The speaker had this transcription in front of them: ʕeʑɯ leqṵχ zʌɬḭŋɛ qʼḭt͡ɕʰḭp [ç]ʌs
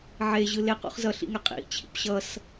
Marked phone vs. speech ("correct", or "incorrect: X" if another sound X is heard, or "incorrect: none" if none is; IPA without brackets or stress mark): incorrect: ɕ